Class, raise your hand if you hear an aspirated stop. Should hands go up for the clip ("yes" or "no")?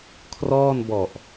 yes